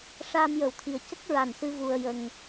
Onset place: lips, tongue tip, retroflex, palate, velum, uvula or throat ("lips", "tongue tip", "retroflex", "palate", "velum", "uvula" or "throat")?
retroflex